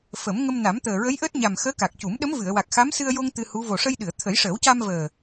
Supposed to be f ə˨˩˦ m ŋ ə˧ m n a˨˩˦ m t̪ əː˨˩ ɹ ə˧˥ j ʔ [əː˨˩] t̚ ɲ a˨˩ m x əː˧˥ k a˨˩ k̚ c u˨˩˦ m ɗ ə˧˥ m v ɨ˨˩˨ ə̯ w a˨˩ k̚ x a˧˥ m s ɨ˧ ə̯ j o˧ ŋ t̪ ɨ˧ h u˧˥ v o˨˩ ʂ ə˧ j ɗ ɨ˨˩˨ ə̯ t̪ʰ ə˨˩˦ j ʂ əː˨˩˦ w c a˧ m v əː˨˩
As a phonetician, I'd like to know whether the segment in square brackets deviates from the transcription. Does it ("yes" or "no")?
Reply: yes